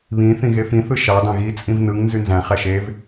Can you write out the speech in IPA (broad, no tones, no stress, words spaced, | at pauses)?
βĩ θĩɣefĩθɯ ʃɑ dɑ̃ɣit͡sʼĩv nɯŋ nzynzæ̃χæ ʃev